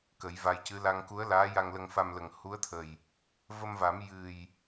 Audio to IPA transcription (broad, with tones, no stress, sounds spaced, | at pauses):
k ə˨˩˦ j v a˧ j c ɨ˧˥ l a˧ ŋ k u˧˥ ə̯ l aː˧˥ j a˧ ŋ l ə˧ ŋ f a˧ m l ə˨˩ ŋ h u˧˥ ə̯ t̪ʰ ə˨˩ j | v ə˧ m v a˨˩˦ m j ɨ˨˩ j